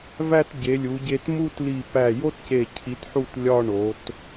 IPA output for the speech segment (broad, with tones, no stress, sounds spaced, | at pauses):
v æ˥˧ t ɟ e˩˧ lʲ u˩˧ ɟ e˧ t m u˥˧ t l i˧˩ p æ˧˩ j o˥ t c e˧˩ cʰ i˩˧ t ħ u˧˩ t lʲ ɒ˥˧ ɳ o˩˧ t